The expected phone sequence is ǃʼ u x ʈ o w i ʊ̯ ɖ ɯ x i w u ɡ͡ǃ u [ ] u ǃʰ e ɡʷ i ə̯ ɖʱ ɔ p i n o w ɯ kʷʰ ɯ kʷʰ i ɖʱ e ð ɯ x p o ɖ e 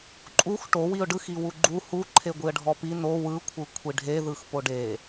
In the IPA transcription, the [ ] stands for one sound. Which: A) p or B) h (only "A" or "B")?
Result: B